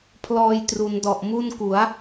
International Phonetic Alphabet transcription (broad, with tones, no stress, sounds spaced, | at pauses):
pʰ l ɔː˧ j t r u˩˦ n d ɔ˨˩ ʔ m u˥˩ n k u˩˦ a̯